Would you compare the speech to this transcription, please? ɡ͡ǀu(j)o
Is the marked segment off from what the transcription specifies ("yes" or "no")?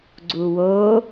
yes